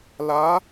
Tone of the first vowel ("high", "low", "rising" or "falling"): rising